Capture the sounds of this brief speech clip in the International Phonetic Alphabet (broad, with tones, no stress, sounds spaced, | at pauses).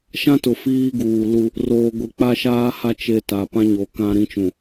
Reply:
ʃ ã˦ t ʊ˨ f iː˦ ɡ uː˨ l u˦ | r oː˨ ɡʷ e˨ k͡p a˦ ʃ aː˦ h a˦ t͡ʃ e˦ t a˨ p ã˦ ɲ o˨ k ã˦ ɾ ĩ˦ t͡ʃ ũ˨